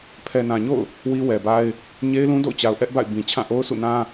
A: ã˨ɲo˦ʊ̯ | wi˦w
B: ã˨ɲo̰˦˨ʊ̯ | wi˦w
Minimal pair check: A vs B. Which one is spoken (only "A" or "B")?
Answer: B